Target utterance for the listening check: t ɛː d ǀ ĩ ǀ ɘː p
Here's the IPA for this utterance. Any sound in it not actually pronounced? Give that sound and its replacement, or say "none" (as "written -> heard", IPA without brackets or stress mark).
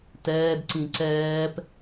ɘː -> ɛː